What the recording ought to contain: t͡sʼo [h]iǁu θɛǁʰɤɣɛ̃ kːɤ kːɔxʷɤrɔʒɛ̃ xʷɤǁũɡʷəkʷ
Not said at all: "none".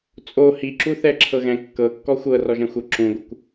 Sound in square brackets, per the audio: h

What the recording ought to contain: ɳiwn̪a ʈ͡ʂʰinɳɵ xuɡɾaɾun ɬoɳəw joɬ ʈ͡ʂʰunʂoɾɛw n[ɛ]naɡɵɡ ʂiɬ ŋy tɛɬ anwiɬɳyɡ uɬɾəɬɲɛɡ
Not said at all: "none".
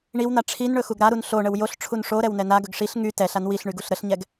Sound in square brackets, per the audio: ɛ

